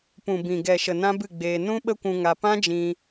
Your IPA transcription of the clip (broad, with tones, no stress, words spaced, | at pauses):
pũ˨bĩ˨ɡɛ˨ʃə˨ nã˦bɨ˦˨ɡ͡beː˧ nũ˦ɓə˦kʷũ˧ŋa˧ pã˦d͡ʒĩ˧